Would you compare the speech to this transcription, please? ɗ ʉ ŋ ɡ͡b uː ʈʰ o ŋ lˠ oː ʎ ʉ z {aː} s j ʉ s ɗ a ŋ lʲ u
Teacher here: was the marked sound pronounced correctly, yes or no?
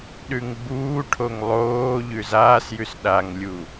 yes